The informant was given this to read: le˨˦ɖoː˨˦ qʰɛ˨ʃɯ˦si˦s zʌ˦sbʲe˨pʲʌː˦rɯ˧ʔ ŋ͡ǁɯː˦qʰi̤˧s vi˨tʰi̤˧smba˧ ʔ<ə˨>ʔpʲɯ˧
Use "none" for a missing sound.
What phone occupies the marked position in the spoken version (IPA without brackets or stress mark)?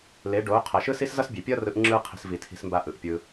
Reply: ɯ˨